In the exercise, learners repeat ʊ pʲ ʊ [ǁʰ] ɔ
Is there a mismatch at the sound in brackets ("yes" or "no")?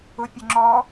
yes